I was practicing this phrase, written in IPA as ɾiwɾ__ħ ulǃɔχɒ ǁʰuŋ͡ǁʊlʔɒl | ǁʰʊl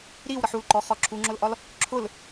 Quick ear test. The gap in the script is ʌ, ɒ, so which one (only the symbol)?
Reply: ʌ